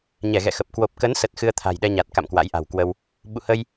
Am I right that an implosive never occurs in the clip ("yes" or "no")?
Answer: no